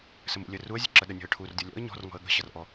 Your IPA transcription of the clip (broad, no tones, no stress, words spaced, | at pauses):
səmṵlʲə ruə̯zʲə̤ ǁəɗənʲɔ̤ə̯ ʈʰurdʲɔ lʲɔ̰ə̯ ɲɔ̤r ŋɔ̤ə̯ɠə̤ɕʌr ʔɔ